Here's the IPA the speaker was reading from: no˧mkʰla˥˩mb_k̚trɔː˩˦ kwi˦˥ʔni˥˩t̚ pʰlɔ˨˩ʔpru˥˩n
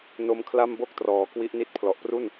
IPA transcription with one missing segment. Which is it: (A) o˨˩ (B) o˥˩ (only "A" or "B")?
B